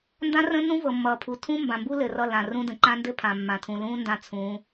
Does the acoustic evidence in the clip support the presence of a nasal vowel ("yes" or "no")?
yes